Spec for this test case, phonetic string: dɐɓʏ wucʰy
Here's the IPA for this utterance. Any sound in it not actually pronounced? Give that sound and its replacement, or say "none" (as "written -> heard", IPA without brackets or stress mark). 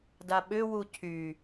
ɐ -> a